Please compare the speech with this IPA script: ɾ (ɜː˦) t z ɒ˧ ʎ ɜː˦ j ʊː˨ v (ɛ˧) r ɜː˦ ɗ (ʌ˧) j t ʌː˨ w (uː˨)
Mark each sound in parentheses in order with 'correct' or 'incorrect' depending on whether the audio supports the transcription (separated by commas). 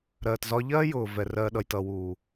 incorrect, correct, correct, correct